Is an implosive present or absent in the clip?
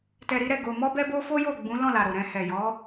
absent